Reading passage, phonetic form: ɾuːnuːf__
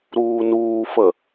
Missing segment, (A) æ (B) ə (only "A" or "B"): B